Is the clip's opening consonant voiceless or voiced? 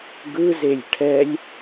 voiced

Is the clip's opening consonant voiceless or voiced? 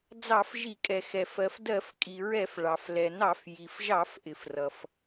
voiced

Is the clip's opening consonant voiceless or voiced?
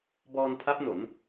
voiced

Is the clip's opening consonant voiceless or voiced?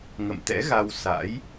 voiced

